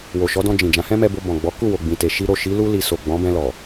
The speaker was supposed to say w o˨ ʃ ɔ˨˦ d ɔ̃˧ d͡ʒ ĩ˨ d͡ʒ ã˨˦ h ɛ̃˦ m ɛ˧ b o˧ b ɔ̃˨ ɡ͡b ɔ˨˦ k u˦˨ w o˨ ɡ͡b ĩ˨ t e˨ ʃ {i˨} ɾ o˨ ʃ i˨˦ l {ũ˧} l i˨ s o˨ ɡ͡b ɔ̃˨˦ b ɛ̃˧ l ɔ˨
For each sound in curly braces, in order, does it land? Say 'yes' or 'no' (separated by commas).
no, no